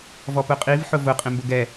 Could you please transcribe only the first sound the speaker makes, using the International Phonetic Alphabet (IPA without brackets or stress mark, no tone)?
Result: v